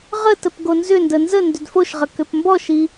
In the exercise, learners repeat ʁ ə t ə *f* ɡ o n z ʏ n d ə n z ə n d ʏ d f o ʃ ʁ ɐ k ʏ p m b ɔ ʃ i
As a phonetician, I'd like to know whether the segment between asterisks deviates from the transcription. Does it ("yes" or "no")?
yes